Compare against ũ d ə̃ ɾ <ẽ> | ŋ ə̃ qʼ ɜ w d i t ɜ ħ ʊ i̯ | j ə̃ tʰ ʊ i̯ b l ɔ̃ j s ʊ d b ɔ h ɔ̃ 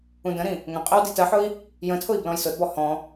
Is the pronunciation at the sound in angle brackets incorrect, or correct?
incorrect